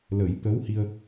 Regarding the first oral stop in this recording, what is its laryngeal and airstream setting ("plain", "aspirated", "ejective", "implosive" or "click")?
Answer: plain